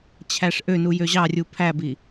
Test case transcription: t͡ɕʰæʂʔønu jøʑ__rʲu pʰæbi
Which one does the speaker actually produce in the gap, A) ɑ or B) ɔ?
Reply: A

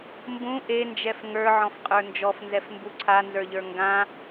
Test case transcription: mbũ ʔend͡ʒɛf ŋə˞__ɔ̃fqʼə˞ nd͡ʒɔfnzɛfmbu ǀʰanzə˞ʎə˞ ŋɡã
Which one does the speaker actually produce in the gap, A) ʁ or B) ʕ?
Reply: B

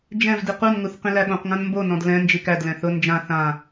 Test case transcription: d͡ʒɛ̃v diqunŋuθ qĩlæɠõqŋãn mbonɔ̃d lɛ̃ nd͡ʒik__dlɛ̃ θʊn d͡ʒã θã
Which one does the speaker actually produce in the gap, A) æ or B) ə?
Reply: A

